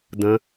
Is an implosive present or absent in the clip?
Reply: absent